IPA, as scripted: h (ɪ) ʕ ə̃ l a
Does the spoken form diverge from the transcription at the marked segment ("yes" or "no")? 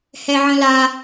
yes